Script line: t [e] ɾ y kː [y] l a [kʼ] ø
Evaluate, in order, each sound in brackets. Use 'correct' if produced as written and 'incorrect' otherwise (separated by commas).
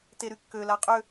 correct, incorrect, incorrect